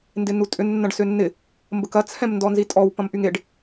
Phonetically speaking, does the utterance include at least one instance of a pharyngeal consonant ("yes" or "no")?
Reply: no